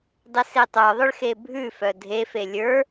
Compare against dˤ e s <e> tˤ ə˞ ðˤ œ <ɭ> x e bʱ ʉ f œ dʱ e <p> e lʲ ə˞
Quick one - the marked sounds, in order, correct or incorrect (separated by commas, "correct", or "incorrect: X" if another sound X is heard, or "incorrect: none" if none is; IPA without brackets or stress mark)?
correct, correct, incorrect: f